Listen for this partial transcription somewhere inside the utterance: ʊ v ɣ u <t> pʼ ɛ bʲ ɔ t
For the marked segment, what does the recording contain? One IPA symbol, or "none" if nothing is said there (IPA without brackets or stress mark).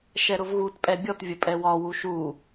t